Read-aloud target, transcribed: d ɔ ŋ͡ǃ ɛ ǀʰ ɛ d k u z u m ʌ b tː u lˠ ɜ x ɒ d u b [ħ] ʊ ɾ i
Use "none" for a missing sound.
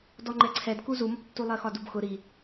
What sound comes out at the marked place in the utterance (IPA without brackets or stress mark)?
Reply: x